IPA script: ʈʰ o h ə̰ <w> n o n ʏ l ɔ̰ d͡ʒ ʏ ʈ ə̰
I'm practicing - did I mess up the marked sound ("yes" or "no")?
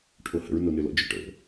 yes